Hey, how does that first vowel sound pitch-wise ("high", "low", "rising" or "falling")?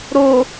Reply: low